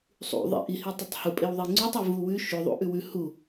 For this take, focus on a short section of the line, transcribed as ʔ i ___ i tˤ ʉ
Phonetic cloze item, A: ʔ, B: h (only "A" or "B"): B